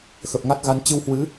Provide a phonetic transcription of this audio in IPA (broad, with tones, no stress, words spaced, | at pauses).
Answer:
xə˨˩p̚ŋa˦˥t̚ɣa˨˦n t͡ɕɨ˧whwɨ˨˦